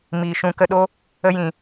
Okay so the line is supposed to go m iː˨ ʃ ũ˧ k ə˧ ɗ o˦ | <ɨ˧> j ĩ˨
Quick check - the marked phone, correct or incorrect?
incorrect: ə˧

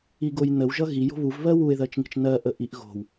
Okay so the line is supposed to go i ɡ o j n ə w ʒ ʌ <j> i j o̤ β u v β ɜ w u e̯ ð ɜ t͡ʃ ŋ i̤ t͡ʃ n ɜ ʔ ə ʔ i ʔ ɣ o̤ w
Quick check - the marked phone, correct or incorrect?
incorrect: ɣ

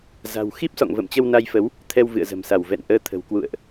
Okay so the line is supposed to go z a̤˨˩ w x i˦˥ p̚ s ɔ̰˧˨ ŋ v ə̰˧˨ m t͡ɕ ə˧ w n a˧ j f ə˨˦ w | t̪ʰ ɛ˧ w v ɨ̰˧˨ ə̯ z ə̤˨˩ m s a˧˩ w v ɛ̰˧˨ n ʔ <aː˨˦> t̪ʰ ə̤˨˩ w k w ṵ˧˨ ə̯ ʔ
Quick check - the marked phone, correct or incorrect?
incorrect: əː˨˦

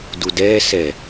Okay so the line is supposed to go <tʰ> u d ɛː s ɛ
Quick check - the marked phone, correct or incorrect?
incorrect: d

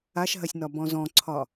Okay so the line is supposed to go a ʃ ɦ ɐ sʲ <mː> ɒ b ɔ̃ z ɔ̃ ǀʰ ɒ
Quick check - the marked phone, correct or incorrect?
incorrect: n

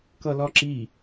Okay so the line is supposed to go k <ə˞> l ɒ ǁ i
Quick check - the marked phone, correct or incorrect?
incorrect: ʌ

